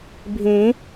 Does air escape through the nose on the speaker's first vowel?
yes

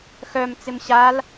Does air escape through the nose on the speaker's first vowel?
no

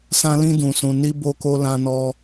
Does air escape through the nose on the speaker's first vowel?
yes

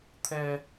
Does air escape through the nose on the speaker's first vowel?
no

